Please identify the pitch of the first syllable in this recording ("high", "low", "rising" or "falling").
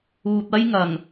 low